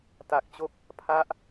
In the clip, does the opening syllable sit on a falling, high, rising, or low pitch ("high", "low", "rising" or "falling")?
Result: low